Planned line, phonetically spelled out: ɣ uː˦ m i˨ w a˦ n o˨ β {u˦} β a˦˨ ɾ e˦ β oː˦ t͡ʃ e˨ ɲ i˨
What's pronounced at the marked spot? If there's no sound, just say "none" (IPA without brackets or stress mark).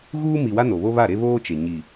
o˦